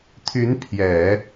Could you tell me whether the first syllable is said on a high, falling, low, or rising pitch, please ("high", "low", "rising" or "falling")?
rising